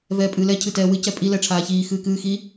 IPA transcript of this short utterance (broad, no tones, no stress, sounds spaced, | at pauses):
v ɛː pʼ ɨː l ɛ cʰ ɨ t ɛː w ɨ c ɛ pʼ i l ɛ ʈ͡ʂʰ aː ç iː x ɨː k ɨː x i